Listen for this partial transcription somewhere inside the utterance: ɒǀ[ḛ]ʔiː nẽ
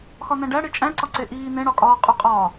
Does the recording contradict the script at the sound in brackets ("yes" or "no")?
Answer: yes